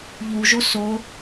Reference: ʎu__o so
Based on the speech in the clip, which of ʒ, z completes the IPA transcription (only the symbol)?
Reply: ʒ